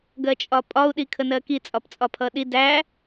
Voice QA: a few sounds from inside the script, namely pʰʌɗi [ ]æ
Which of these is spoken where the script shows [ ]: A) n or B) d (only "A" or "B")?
B